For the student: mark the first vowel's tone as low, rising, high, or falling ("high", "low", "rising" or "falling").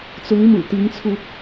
rising